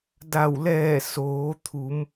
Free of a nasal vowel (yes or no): yes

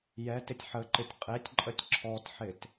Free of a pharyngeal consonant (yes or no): no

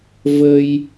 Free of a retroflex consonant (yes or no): yes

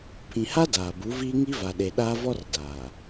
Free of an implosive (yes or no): no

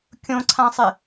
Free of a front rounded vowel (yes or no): yes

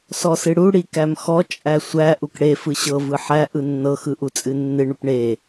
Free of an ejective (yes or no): no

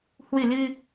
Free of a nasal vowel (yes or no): yes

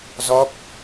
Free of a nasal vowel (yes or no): yes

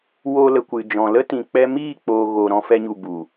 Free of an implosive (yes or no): yes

